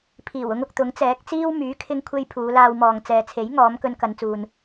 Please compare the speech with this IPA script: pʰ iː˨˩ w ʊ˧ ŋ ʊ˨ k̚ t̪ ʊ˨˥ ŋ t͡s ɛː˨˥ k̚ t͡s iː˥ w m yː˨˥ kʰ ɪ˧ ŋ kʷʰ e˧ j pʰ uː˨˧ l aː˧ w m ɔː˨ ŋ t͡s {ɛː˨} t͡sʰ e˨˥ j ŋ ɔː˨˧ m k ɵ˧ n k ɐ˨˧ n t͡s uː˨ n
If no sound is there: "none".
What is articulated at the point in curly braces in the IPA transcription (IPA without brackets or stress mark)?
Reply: ɛː˨